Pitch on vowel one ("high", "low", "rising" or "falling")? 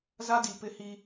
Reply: high